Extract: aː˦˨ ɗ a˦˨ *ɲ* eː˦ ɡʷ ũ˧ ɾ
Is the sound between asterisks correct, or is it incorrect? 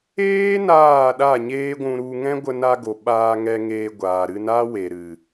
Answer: correct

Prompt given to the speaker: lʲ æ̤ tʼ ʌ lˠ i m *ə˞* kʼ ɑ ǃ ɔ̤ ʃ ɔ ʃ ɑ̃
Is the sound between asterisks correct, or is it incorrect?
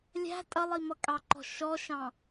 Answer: incorrect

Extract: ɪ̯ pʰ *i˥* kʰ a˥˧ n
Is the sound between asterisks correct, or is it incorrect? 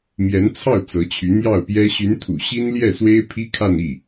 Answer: correct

